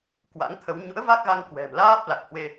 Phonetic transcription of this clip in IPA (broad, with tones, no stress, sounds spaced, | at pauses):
k w a̰˧˥ ŋ t̪ʰ ə˨˦ w ɲ ṵ˧˥ ə̯ v a˦˥ k̚ ɣ a˧ ŋ k w ɛ̤˨˩ m l aː˦˥ p̚ l a˨˩ k̚ h w e˧